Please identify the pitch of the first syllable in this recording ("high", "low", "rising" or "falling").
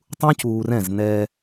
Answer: high